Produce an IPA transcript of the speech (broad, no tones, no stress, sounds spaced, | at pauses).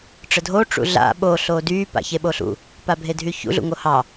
ʈ͡ʂ ə dʱ o ʈ͡ʂ ṵ ɮ a̰ ɓ o ɬ oː d yː p a̰ ç e ɓ o ɬ ṵ | p a bʱ e dʱ y ç ṵ ɮ ṵ ŋ o h ɑ